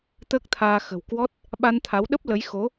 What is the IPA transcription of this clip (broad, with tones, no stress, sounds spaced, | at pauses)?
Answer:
t̪ əː˦˥ k̚ t̪ʰ aː˧ x ə̤˨˩ w k w ɔ˦˥ t̚ | ɓ a˧ n t̪ʰ a˨˦ w ɗ ə˦˥ p̚ l ə˨˦ j x o˨˦